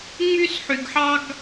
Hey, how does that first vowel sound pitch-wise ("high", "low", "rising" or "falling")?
high